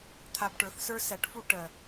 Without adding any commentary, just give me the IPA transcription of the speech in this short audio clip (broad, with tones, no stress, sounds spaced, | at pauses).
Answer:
t̪ʰ a˧ b ʈ ə˞˩˥ θ s ə˞˥ s æ˩˥ ʈ f u˧ ʈ ɜ˩